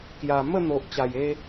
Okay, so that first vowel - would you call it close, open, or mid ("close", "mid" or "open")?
open